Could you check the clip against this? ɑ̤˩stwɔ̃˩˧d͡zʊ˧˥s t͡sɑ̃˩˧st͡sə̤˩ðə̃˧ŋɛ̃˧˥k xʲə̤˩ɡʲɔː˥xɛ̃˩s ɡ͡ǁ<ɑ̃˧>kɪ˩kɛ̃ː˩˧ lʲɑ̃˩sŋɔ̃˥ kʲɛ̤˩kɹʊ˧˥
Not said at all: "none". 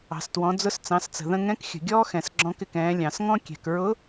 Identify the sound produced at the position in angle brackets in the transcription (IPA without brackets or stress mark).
ɔ̃˧